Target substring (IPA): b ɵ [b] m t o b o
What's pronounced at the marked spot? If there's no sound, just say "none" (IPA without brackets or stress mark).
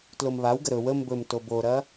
none